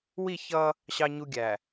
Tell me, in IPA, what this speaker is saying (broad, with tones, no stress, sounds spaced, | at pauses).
w i˦˨ ç ʌ˦ | ɕ ɑ˦ ɲ u˦ ɡʲ æ˨